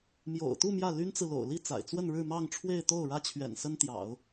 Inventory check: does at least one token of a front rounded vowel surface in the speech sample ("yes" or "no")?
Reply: yes